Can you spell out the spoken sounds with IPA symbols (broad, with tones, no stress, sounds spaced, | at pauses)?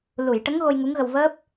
l u˨˩˨ j ʈ ə˧˥ ŋ ɣ o˧ j ŋ u˧˥ ŋ ɣ ə˧ w v əː˦˥ p̚